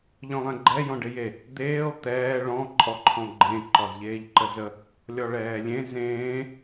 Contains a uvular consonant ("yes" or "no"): no